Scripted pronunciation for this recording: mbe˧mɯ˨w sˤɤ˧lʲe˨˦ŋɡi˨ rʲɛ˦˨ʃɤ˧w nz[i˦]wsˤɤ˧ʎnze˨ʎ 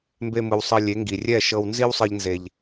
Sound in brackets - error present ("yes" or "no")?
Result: no